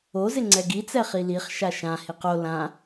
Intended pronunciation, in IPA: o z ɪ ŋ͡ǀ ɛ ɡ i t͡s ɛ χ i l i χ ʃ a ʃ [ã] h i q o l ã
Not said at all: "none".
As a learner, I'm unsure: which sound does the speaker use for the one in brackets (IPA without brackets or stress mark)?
ã